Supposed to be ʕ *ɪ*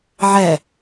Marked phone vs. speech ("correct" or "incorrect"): incorrect